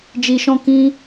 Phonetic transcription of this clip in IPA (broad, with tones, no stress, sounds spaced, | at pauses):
d͡ʒ i˨ ʃ ɔ̃˧ k ĩ˧